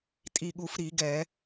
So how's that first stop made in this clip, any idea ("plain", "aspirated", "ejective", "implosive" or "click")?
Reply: ejective